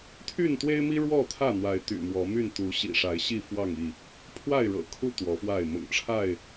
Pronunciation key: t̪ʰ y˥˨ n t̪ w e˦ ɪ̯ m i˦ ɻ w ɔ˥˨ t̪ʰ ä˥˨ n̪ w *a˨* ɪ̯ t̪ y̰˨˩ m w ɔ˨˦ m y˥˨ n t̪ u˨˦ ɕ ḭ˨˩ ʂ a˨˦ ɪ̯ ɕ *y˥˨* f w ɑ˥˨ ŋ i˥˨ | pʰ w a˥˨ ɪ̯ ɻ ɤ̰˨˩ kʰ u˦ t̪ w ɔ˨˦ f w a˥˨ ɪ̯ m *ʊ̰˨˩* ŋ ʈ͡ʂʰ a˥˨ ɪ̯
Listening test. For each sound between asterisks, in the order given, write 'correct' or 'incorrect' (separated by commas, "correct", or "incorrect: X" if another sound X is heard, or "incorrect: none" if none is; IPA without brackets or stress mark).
incorrect: a˨˦, incorrect: i˥˨, correct